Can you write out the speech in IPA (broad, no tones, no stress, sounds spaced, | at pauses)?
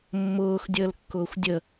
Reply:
mː ʊː x dʲ əː l kː ʊː xʷ dʲ ə